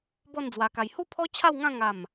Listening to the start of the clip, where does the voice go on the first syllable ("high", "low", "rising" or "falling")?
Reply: falling